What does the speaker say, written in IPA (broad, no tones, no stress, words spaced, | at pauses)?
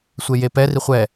sʷejepɛ riχʷɛ